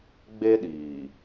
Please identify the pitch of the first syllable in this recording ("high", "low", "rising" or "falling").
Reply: high